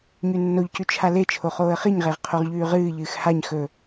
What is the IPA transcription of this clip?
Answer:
ɲ ʉ nː o ʎ c ʉ t͡ʃʰ a l e t͡ʃʰ o χ oː ə̯ χ i ɲ ʁ e ʁ qʰ o ʁ ʎ ʉː ʁ ɨː ʎ ɨː x h a ɲ x ɵ

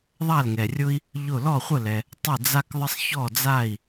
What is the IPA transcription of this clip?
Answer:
ðˤ a˥˩ l ŋ ɛ˩ rʲ ʊ˥ i̯ | ʎ ʊ˥˩ l ɔ˥˩ χʷ ə˥˩ l ɛ˩ | tˤ ə˥˩ d͡z a˥ k ðˤ ə˥ sˤ ç ɔ˥˩ d͡z a˥˩ i̯

